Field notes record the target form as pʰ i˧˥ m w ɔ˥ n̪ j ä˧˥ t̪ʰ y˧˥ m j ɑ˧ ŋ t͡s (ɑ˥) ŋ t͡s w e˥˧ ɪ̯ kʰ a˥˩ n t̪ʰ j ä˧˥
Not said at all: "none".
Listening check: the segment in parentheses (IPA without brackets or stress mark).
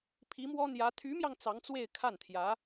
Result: ɑ˧˥